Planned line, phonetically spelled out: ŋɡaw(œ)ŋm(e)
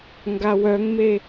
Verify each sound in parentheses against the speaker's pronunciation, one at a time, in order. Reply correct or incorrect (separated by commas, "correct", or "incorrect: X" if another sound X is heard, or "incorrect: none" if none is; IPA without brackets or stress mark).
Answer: correct, correct